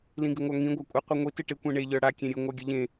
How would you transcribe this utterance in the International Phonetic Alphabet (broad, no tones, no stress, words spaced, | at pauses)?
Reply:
lĩɡɪŋʷaŋĩ ɡʷakʷʼɨ qʷiŋʷi tɨʈɪ kʷẽɳe ʎə˞ɽa kʲẽɾʲɨ ŋʷaɡʲɘʎẽ